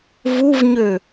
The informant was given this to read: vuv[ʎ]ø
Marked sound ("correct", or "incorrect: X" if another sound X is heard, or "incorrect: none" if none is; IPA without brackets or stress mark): incorrect: ɲ